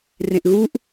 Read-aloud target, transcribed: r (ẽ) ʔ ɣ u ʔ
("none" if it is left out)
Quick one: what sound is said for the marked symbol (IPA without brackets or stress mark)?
ẽ